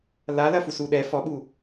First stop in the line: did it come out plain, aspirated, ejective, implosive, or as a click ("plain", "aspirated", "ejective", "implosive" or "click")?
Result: implosive